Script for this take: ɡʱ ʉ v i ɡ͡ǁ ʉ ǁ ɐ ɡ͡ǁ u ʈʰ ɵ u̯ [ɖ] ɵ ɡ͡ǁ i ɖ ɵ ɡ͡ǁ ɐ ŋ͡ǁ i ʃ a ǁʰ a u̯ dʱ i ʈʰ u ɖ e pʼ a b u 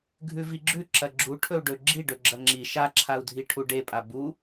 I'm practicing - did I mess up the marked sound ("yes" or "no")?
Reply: no